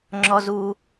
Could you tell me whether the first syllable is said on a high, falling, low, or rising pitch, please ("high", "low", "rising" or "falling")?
high